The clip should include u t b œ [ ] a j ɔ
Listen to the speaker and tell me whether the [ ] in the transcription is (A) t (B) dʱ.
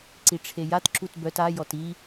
A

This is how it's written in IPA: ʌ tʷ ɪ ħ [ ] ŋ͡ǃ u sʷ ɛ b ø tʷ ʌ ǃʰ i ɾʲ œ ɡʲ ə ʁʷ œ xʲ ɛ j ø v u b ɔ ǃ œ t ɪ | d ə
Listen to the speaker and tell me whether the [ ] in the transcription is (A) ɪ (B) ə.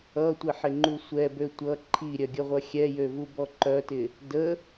A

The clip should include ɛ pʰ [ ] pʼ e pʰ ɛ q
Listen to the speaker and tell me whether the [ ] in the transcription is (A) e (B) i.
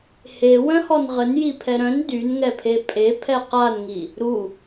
A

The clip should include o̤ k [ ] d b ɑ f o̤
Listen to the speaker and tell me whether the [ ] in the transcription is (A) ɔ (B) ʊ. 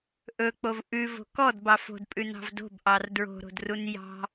A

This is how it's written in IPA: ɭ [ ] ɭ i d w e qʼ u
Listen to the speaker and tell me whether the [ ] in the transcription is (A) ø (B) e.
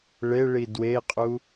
B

